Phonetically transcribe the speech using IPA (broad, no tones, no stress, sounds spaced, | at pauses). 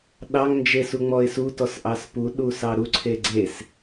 ɗ ɑ ŋ n d͡ʒ e s u ŋ͡m ɔ ɪ̯ s u t ɔ s ʔ ɑ s p u ɗ u s ɑ ɾ u ǀʰ e ɡ͡ǀ e s